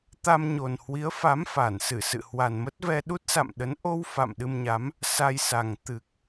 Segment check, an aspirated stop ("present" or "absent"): absent